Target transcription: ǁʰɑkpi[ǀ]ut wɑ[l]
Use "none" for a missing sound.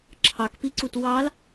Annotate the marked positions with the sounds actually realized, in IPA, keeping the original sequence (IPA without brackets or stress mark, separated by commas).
ǀ, l